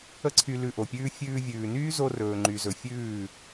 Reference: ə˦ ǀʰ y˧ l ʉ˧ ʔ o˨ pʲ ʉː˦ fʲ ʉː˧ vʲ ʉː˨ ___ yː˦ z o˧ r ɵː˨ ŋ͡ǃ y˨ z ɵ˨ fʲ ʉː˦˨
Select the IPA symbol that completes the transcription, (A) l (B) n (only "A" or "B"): B